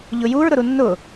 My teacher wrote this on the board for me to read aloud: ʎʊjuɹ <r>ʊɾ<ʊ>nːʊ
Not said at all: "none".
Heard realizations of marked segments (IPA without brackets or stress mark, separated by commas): ɾ, u